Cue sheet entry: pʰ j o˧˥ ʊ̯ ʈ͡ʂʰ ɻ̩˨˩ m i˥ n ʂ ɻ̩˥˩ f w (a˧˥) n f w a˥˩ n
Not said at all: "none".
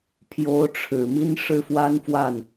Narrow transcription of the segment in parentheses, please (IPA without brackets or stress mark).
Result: a˥